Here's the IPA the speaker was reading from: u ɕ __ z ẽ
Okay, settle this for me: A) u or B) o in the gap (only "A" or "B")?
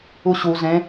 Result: A